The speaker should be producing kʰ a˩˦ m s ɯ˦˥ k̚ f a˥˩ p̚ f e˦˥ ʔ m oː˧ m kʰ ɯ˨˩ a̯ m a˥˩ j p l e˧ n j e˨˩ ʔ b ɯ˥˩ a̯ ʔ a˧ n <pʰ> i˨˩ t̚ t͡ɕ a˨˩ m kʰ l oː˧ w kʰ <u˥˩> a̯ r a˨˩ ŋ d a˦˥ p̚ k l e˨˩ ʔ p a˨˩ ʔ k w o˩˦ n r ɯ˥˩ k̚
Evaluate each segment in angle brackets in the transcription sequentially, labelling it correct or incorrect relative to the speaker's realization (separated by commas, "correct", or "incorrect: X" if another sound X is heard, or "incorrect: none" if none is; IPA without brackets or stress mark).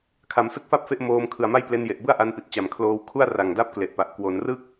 incorrect: p, correct